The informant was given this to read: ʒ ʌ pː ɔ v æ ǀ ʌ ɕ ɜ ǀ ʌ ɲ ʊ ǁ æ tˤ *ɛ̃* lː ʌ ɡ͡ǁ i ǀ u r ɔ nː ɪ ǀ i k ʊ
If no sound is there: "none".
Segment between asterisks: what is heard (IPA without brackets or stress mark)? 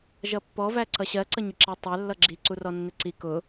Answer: ɛ